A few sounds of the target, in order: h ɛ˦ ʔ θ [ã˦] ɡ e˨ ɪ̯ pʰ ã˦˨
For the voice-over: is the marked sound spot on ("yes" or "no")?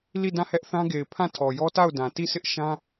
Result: yes